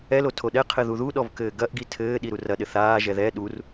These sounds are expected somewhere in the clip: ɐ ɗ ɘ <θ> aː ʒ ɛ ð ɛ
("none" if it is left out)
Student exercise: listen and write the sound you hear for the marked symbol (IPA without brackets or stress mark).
θ